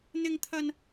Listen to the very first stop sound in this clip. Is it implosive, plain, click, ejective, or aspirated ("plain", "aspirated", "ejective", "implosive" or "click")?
aspirated